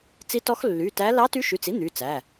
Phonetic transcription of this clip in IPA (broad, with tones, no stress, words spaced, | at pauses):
t͡si˧˥tɔ˧˥x lːy˩˧˩tæ˧˥ lɑ˧˥ty˧˥ʃy˩˧˩t͡si˧˥ n̪y˩˧˩ t͡sæ˩˧˩